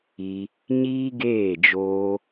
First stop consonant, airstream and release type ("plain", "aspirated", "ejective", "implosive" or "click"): plain